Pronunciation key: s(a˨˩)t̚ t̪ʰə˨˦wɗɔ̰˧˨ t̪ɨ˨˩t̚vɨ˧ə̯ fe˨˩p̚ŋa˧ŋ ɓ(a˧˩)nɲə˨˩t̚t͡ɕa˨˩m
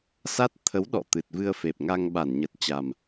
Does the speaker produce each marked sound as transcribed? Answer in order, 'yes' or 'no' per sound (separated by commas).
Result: no, yes